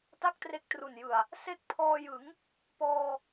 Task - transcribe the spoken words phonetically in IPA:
t a˥˩ k̚ t r e˦˥ k̚ t r u˨˩ n j ɯ˨˩ a̯ | s e˦˥ k̚ pʰ ɔː˧ j ɯ˩˦ ŋ | p ɔː˧

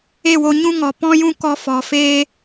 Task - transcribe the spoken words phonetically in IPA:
e˦˨ w o˧ ɲ ũ˦ ŋ ɔ˨ p ɔ̃˦ j ũ˦ k ɔ˧ f ɔ˨ f eː˦

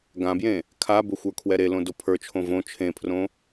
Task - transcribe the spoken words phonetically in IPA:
ɡ ã b j ẽ | kʰ a b ʊ xʷ ə˞ kʰ w ɛ ɾ e l õ d o pʰ ə˞ t͡ʃʰ õ v õ t͡ʃʰ ẽ pʰ r õ

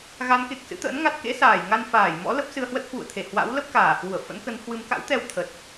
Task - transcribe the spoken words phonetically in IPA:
ɣ a˨˦ n k e˨˩ k̚ s ɨ̰˧˥ t̪ ə̰ː˧˥ n ŋ a˦˥ t̚ k ḛ˧˥ s aː˧˩ j ŋ a˧ n f aː˧˩ j m ɔ̰˧˥ l ə˦˥ p̚ s ɨ˧ ə̯ h w ə˦˥ t̚ h w ṵ˧˨ ə̯ t̪ʰ e˧˩ h w a̰˧˥ w l ə˦˥ p̚ k aː˧˩ h w u˧˩ ə̯ f ə̰˧˥ n k ə˨˦ n h w ɨ˨˦ m k a̰˧˥ w t̪ ɛ˧ w t̪ʰ ə˨˩ t̚

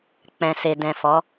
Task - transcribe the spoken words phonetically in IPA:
k͡p ɛ̃˨ s e˨ d ɛ̃˨ f ɔ˨˦

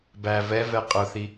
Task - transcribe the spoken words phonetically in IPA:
b æ v ɛ v ɛ qʼ ʊ θ i

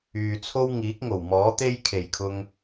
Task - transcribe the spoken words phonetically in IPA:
yː˨ t͡sʰ o˥ w ŋ iː˨˥ k̚ ŋ o˨˩ w m ɔː˨˥ t̪ e˥ j kʰ e˨˩ j kʰ ʊ˧ ŋ

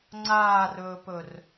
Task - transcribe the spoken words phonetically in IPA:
ŋ͡ǀ aː r ɵː p ɵ r

